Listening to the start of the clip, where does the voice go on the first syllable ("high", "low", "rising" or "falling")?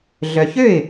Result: low